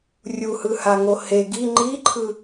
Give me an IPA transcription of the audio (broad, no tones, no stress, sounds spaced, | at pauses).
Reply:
rʲ u h ɯ h a ŋ o h e ɡ i ŋ͡ǃ i ǃʰ ɯ